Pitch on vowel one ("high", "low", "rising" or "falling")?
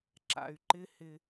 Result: low